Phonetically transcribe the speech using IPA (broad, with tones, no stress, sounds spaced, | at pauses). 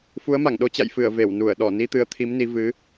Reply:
f u˨˦ ə̯ m a˧˩ ŋ ɗ o˧ t͡ɕ a̰˧˨ j f ɨ˧˩ ə̯ v e˧˩ w n u˧˩ ə̯ ɗ ɔ˧˩ n i˧ t̪ ɨ˨˦ ə̯ t̪ʰ i˨˦ m n i˨˦ v ɨ˨˦